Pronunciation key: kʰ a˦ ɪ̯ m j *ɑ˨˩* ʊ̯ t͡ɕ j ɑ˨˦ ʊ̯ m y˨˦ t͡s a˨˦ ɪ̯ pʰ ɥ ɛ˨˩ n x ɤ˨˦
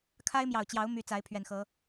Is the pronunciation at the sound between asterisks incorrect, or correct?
correct